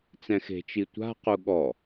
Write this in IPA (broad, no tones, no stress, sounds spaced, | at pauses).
t͡s ɛ̃ x e̤ t͡ʃ i tʷ a̤ q u ɠ ɔ